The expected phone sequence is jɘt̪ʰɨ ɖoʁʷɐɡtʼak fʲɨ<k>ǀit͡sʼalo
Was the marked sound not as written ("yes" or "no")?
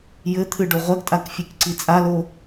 no